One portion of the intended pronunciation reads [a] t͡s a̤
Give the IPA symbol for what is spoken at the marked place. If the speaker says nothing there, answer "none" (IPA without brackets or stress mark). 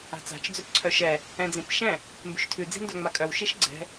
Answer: a̤